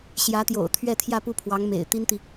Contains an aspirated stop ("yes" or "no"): yes